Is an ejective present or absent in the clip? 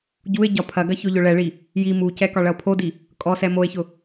present